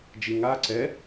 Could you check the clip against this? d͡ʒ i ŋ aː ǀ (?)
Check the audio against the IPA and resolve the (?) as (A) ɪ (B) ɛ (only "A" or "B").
B